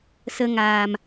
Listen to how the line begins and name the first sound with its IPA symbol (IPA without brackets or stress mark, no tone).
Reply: s